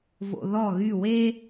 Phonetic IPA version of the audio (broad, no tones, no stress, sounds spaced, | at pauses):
v o̰ ð ɔ ɣ y w e